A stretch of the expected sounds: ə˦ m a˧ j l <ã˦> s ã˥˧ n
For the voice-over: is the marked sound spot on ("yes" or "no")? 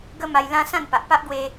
yes